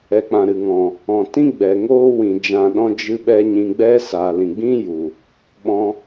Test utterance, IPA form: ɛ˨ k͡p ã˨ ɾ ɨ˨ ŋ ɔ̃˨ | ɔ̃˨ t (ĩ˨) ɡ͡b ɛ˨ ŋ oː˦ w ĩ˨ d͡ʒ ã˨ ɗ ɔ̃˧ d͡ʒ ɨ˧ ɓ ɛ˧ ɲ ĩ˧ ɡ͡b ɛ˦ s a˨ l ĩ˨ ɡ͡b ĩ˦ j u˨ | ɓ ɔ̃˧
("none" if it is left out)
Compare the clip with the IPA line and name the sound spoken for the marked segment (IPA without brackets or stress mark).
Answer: ĩ˦